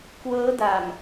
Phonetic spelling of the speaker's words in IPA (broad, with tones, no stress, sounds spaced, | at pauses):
k w ɤː˦˥ d a˨˩ m